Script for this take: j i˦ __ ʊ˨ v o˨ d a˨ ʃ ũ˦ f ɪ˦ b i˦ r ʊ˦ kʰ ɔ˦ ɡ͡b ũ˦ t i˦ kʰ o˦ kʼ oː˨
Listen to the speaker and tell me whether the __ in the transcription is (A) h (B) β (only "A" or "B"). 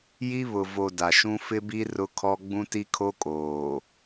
B